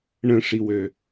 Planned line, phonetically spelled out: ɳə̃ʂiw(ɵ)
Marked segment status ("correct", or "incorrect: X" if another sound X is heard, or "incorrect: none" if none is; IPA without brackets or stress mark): incorrect: ø